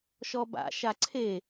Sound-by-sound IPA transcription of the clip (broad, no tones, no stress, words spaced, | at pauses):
ʃɔba̰ʃa ǀʰe